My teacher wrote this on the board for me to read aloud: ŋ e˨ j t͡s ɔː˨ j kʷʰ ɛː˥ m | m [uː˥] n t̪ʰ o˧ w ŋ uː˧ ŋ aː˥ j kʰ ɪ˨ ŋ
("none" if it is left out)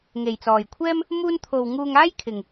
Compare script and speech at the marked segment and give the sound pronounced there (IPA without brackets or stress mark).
uː˥